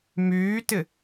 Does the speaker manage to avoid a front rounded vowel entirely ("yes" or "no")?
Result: no